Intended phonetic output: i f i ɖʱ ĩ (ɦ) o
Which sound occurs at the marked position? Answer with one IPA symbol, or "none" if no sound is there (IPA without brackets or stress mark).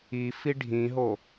ɦ